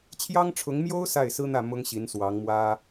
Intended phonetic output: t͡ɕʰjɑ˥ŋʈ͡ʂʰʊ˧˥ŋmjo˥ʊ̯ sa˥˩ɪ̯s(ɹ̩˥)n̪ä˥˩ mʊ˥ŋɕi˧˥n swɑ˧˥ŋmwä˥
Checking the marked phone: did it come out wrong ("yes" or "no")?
no